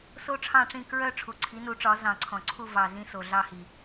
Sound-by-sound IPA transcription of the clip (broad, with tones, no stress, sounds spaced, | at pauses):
s o˦˨ ʈ͡ʂʰ ɑ̃˦˨ ʈ͡ʂ ĩ˦˨ k ɹ œ˦˨ ʈ͡ʂʰ u˨˩ ǀʰ i˩˥ n u˩˥ ʈ͡ʂ ɒ˩˥ z ɑ̃˨˩ ǀʰ ɔ̃˨˩ ǀʰ u˦˨ v ɑ˨˩ z ĩ˦˨ s o˨˩ ɮ ɑ˦˨ h i˨˩